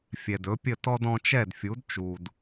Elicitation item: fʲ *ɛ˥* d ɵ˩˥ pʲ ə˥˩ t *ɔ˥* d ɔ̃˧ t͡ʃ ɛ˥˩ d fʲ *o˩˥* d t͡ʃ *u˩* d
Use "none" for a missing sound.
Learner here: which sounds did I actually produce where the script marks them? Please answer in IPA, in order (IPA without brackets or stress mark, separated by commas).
ɛ˩, ɔ˥, u˩˥, u˩